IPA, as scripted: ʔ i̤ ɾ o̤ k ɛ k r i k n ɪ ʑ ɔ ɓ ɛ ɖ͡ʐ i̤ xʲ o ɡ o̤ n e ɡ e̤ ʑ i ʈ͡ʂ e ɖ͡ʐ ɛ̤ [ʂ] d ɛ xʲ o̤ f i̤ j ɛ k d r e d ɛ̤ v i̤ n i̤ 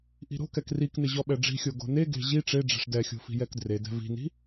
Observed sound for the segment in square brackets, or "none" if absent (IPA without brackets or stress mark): ʂ